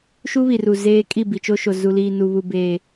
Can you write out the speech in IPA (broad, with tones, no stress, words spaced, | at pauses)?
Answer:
ʃu˦βi˨ru˨ zeː˦kʼi˦˨ bi˨t͡ʃo˦ʃo˨ zu˨liː˨nu˨βu˨ beː˨